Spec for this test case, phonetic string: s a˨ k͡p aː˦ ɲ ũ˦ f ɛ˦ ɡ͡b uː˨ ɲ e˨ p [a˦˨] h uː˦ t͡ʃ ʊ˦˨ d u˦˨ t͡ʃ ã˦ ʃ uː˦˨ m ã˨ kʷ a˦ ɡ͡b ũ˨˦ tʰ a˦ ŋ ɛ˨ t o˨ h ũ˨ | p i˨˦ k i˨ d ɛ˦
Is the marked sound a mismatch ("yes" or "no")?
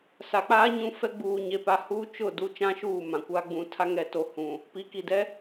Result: yes